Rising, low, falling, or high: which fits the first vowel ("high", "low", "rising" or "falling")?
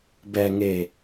low